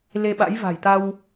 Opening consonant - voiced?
yes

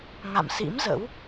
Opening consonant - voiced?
yes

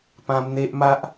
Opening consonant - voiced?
no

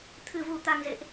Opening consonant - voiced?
no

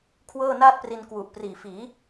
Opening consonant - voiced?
no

